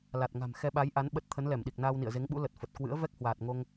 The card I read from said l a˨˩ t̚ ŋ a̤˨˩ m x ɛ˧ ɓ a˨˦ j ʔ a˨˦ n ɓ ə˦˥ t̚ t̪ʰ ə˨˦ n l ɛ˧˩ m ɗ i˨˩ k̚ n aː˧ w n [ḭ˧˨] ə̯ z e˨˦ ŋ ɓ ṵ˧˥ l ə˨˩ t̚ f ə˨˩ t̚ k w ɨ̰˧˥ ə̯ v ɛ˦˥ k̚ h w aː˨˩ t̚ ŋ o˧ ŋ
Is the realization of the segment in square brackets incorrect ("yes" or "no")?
no